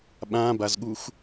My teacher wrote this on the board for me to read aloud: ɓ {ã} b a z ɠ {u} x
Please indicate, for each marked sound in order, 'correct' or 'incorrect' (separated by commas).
correct, correct